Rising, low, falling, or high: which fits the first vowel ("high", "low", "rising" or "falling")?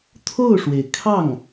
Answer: falling